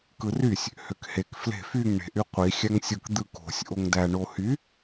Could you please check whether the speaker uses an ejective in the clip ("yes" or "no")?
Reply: no